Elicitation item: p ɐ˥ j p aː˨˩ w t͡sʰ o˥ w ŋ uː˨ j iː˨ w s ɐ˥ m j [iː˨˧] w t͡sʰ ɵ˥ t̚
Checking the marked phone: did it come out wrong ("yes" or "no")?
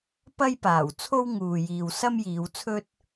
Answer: no